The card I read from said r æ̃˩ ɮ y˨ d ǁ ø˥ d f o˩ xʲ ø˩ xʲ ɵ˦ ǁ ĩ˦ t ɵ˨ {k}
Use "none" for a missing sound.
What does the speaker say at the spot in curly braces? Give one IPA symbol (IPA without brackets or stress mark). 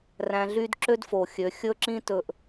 ʔ